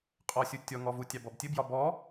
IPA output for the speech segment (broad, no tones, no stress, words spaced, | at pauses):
qʼɔsʲu tʲɔŋɔ vutʲɑb ɔbtʲɘbjɒ bɔ